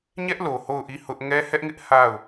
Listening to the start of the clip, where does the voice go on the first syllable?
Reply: high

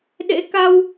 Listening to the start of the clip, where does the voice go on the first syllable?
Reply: rising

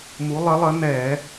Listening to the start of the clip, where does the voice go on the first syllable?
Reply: rising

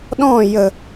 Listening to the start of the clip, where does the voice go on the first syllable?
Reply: falling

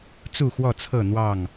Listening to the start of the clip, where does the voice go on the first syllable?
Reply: falling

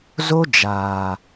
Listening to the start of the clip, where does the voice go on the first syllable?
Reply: high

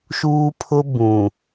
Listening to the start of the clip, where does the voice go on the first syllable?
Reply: high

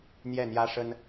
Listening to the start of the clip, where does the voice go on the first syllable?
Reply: falling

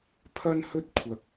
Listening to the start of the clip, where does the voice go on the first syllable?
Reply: high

